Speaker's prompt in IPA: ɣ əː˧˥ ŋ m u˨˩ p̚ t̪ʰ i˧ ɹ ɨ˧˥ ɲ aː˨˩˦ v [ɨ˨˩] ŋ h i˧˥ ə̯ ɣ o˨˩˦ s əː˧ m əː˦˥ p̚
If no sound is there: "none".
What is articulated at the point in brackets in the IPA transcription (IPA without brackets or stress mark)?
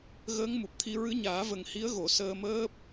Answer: ə˨˩